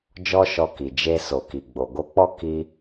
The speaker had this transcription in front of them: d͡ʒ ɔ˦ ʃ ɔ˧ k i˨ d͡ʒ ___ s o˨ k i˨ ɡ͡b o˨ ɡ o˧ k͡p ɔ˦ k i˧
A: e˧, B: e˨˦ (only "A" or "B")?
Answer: A